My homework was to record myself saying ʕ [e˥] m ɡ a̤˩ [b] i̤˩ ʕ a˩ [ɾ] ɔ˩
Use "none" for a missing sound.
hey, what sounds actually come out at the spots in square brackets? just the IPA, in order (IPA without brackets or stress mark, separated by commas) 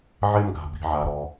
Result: e˥, b, ɾ